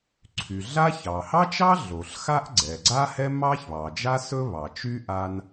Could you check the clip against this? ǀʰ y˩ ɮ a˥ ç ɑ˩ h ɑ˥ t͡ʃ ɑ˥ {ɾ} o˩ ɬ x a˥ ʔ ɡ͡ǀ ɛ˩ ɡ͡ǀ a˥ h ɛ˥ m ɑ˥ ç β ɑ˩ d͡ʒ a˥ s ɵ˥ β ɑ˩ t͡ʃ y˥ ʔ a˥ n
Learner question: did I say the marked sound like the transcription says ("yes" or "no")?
no